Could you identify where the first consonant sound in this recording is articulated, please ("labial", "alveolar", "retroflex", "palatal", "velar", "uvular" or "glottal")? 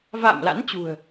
labial